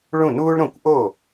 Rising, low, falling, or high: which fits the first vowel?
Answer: falling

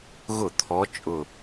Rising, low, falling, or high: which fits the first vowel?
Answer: falling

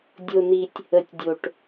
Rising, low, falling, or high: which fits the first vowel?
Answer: high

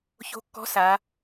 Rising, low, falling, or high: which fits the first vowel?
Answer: rising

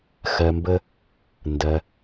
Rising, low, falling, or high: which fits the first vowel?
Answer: low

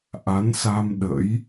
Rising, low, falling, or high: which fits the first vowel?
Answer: rising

